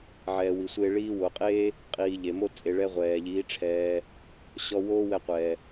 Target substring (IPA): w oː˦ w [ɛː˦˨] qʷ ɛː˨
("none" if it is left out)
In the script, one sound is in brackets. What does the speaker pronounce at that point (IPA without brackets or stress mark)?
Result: ɛ˦˨